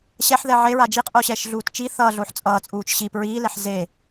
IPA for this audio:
ɕɛħðɛ ʕeɹa d͡ʒiqʼoɕɛʃɮuːt t͡ʃi θʌːɮoħ t͡sʼʌːt͡sʼuːt͡ʃ ɕip ɹiːlɛħ ze

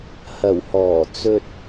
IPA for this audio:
hɐ˨˩whɔː˨˩ t͡sɵ˧t̚

